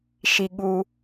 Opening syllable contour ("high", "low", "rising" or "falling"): low